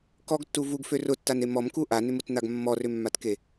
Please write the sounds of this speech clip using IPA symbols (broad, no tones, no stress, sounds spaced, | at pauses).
k ɔ ɡ tː u v u ɡ f ø r ʊ tː a n e m ɔ m k u ʔ a n ʏ m ʊ t n̪ a ɡ mː ɔ r ʏ mː a t k e